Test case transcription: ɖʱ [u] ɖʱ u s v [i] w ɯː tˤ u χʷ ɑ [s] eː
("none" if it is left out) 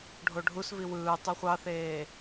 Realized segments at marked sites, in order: o, i, θ

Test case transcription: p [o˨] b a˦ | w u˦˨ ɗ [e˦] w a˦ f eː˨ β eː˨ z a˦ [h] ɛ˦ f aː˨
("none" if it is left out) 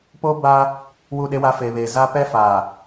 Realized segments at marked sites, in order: o˦, e˦, p

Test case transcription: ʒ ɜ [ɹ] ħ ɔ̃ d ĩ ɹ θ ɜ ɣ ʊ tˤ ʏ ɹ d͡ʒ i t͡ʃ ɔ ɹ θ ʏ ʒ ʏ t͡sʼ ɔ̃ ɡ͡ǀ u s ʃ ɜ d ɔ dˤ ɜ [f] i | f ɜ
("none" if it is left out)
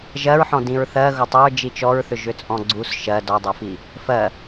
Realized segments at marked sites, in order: ɹ, f

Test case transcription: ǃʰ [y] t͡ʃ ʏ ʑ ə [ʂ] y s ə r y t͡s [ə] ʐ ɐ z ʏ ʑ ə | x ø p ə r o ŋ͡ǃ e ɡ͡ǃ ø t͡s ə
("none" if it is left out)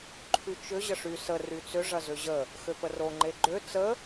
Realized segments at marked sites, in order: y, ʂ, ʏ

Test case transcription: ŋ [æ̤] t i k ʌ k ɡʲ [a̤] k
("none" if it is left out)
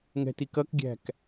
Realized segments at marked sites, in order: ɛ̤, æ̤

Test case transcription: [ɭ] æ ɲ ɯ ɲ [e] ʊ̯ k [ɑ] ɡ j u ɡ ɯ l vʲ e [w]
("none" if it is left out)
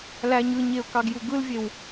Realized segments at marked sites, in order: l, e, ɑ, w

